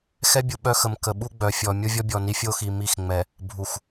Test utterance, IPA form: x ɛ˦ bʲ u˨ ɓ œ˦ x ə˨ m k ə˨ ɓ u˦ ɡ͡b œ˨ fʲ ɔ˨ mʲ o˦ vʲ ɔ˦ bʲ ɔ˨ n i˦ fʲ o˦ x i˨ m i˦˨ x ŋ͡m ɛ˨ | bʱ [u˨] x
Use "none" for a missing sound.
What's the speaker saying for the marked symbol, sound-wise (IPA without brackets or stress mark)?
u˨